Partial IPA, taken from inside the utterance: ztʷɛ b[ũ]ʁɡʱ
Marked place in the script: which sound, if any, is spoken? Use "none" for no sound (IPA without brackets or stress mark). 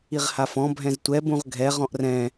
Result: ũ